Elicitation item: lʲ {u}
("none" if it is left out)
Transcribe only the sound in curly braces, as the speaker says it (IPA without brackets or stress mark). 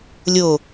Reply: o